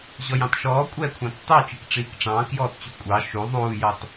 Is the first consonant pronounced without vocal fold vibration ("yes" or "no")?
no